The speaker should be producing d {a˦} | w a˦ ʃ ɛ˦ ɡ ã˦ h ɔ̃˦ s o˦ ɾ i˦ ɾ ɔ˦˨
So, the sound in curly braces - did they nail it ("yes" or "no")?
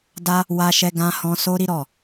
yes